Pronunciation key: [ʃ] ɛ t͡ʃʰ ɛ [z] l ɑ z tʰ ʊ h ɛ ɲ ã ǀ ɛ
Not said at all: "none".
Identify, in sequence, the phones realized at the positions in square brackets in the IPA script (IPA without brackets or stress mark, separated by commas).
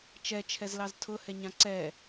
t͡ʃ, z